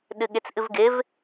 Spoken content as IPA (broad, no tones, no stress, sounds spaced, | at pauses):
ɗ ɨ ɠ ɪ t͡s ʔ ɨ v ɡ ɪ v